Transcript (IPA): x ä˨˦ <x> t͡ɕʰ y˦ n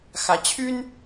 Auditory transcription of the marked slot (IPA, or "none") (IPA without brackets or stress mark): none